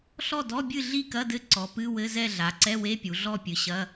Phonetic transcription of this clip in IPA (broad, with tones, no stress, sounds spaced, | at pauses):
ɬ ɔ˥˨ d ɔ˧˥˧ bʲ ɨ˥˨ ɮ i˥˨ k ɐ˧˥˧ d ɘ˧˥˧ ǀ ɔ˩˧ p ɨ˧˥˧ w ɘ˧˥˧ z ɛ˥˨ ɮ a˩˧ ǀ ɛ˧˥˧ w e˧˥˧ pʲ u˩˧ ɮ ɔ˥˨ pʲ ɨ˩˧ ɕ ɐ˧˥˧